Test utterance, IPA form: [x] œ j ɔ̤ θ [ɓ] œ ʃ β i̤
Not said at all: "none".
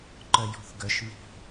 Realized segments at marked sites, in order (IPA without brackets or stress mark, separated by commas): ǃ, ɡ